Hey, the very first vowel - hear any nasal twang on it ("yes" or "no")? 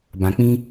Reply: yes